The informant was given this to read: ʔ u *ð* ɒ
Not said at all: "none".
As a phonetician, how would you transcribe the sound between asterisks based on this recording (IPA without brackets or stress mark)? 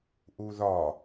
ð